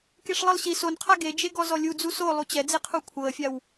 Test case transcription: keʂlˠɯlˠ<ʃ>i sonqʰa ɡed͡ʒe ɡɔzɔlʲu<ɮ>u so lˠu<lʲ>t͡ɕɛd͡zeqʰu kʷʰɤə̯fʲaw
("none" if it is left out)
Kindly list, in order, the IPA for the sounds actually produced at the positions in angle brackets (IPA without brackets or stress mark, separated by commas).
ɕ, d͡z, none